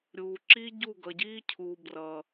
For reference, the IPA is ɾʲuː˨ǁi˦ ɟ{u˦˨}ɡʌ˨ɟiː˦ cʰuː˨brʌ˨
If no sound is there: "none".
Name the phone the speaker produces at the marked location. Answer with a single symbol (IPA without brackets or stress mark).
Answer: u˦˨